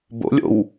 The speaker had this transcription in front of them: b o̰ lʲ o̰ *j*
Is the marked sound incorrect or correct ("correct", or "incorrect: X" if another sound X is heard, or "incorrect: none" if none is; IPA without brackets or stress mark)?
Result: incorrect: w